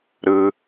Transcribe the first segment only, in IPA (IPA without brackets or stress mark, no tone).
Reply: ɾ